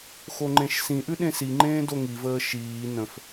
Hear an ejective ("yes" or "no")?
no